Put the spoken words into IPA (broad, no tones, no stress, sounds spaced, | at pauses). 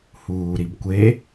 h uː ɾ i b kʷ e